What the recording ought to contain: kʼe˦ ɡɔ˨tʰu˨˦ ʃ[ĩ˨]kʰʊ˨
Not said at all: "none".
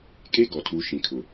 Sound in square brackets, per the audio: ĩ˨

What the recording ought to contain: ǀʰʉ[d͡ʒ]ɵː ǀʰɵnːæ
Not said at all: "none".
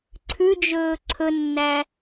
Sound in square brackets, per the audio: d͡ʒ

